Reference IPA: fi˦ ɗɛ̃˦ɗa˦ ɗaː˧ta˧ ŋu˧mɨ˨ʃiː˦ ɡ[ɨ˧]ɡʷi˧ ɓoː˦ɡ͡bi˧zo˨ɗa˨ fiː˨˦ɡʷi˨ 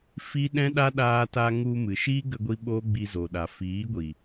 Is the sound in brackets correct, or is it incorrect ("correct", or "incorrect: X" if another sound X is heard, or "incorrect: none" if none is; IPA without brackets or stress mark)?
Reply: incorrect: ə˧